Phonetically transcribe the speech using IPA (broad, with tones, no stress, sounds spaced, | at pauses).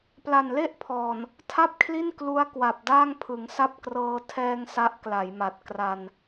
p l a˨˩ n l e˥˩ ʔ pʰ ɔː˨˩ n | tʰ a˥˩ p̚ kʰ l i˥˩ n k l u˦˥ a̯ k w a˨˩ p̚ d aː˥˩ ŋ pʰ ɯ˩˦ ŋ s a˥˩ p̚ k r ɤː˧ tʰ ɛː˧ ŋ s a˦˥ ʔ k l a˩˦ j m a˨˩ t̚ k r a˧ n